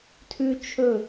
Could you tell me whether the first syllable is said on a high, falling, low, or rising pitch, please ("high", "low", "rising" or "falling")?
high